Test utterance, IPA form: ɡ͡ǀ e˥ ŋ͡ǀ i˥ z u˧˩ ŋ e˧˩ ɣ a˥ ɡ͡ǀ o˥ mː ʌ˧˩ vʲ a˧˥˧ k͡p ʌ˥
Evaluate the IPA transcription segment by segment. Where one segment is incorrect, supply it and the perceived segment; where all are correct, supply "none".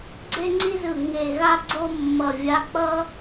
u˧˩ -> ɯ˧˩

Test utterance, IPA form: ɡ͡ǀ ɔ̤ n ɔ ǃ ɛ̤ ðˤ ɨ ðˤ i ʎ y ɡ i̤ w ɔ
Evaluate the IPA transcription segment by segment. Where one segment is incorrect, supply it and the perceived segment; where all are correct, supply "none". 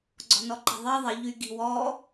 ɨ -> i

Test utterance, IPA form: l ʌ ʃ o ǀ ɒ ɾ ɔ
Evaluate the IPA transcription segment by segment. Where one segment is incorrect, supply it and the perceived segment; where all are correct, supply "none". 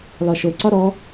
ʌ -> ɒ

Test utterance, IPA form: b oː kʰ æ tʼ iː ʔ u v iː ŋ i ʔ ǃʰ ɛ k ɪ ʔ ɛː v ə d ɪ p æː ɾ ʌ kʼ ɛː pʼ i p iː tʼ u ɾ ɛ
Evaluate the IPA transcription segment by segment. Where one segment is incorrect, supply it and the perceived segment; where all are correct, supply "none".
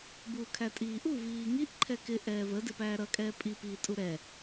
oː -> uː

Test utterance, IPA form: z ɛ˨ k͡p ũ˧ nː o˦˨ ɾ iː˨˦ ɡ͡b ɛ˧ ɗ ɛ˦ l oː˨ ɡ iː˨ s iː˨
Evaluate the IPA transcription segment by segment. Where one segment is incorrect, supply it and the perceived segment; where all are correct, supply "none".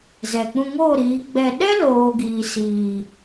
nː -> ŋ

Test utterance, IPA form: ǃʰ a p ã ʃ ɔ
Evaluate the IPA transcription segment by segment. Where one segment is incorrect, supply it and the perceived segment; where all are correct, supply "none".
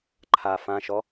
p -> f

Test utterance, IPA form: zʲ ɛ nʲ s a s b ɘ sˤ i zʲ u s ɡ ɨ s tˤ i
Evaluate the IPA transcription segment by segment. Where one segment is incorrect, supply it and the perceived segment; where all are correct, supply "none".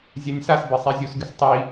none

